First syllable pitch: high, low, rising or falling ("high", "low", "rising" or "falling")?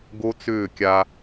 high